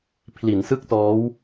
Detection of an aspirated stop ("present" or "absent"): present